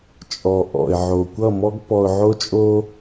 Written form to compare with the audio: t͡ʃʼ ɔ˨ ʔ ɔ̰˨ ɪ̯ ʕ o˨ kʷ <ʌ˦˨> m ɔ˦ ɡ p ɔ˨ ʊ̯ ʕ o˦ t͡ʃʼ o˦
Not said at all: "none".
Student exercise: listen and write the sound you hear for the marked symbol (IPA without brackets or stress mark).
ʌ˦˨